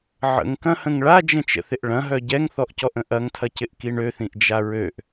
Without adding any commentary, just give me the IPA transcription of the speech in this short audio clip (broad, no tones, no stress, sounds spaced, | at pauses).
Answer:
ʕ ə̰ ŋ k ɐ̃ h ə̃ ŋ ɭ a d͡ʒ ə̃ t͡ʃ ə̰ θ ɪ ʔ ɭ ɐ̃ ɦ œ ɟ ɛ ŋ θ ɔ ʔ c ɔ ʔ ə̃ ʔ ɐ ŋ tʰ ɐ c ɪ ʔ k i ɳ ø θ ĩ ʔ d͡ʒ a ɹ ø ʔ